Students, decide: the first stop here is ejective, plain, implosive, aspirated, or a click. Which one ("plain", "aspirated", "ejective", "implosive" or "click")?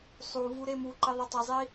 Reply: click